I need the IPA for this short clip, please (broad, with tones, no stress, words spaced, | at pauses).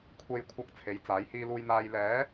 kʷʰe˨j kʷʰɐ˨˥k̚ t͡sʰe˨˥jt͡saː˨˥j hiː˧luː˧jn̪aː˧j lɛː˨˥